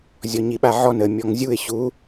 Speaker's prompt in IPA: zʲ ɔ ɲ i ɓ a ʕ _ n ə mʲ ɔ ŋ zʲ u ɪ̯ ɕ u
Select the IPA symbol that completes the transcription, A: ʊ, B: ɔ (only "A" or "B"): B